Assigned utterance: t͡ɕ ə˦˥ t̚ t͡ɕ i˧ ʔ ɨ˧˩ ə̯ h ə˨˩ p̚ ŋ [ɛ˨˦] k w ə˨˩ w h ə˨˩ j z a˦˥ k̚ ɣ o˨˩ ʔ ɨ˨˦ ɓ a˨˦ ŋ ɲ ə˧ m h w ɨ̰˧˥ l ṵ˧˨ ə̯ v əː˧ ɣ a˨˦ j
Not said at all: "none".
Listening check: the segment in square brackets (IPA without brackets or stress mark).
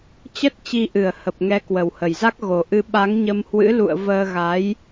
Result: ɛ˨˦